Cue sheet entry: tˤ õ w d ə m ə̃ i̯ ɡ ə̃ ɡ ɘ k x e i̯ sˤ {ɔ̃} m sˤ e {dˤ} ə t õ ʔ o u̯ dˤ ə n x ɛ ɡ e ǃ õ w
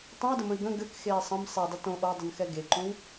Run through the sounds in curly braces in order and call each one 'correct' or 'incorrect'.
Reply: incorrect, correct

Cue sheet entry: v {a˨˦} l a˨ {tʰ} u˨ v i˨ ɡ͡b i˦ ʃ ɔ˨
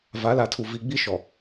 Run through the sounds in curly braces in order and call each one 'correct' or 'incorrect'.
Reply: correct, correct

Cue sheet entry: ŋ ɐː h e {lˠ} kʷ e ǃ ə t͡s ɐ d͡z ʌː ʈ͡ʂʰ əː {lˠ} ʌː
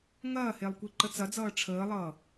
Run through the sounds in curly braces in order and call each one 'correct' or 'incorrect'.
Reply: correct, correct

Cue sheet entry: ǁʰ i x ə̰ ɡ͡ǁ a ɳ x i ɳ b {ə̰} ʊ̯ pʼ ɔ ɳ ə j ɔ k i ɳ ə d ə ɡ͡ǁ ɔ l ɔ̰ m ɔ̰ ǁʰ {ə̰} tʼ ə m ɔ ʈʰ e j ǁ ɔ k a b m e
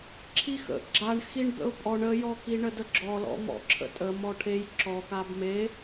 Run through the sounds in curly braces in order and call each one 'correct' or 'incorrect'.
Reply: correct, correct

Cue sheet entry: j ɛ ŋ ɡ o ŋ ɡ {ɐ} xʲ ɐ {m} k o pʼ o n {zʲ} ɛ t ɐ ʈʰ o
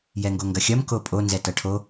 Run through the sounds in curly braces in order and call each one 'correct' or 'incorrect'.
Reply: correct, correct, incorrect

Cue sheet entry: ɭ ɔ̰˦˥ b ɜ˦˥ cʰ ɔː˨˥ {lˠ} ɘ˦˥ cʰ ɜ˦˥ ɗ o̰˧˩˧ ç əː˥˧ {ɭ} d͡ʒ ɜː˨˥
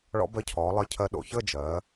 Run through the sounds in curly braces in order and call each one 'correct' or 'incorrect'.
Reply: correct, incorrect

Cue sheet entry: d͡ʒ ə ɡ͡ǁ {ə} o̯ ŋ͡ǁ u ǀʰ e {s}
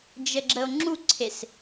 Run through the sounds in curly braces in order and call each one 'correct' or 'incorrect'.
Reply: correct, correct

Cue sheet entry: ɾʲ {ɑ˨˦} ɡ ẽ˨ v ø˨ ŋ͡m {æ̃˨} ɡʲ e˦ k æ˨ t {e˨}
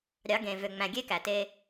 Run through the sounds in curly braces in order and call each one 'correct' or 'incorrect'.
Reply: correct, correct, incorrect

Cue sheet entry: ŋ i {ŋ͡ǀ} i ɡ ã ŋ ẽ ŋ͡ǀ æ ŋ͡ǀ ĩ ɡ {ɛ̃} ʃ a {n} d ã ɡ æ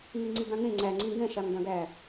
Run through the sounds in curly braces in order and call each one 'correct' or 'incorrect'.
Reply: correct, correct, incorrect

